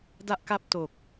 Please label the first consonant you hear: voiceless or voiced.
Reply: voiced